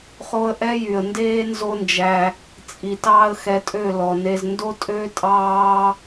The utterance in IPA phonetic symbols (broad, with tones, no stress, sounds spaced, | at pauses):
χ o˧ ə̯ ʔ ɛ˦ j y˨ ə̯ n d eː˦ n z o˦ n d͡ʒ æ˧ | t͡sʼ i˨ t ɑː˦ ə̯ x ɛ˧ tʼ ø˦˨ l ɔ˨ n e˧ z n d o˦ tʼ ø˦ tʼ ɑː˦